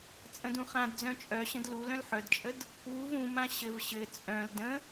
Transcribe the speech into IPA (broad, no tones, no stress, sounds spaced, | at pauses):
t͡sʼ ə̃ d ũ χ ã d d͡z œ̃ t͡ʃʼ œ ɕ ə̃ d l u l œ̃ l ħ œ d t͡ʃʼ ə d | w u v ũ m ã ɕ ɘ v ɕ ɘ t͡sʼ œ̃ l d ə̃